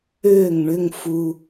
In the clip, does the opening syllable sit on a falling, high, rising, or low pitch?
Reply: falling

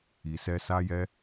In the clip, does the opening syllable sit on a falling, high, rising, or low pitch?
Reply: low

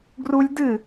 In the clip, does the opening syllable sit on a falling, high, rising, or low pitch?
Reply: high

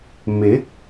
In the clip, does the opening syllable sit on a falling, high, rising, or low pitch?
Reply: rising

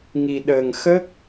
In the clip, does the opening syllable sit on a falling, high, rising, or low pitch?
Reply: low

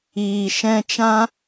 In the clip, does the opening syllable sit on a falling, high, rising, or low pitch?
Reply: low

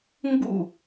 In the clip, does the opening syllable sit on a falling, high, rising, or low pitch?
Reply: falling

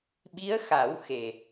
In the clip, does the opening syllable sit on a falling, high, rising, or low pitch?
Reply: rising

